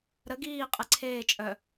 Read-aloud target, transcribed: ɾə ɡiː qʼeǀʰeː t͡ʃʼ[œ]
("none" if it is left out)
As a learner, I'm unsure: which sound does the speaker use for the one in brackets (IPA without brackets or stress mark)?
œ